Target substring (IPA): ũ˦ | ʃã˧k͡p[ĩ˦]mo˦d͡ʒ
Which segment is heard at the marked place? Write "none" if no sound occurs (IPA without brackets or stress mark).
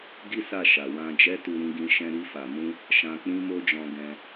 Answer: ĩ˦